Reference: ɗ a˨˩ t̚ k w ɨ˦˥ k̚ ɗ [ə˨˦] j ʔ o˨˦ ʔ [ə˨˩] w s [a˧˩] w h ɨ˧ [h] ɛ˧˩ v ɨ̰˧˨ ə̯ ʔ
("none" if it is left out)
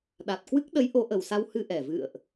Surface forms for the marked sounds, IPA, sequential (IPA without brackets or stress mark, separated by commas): ə˨˦, ə˨˩, a˧, ʔ